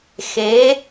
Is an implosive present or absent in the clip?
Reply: absent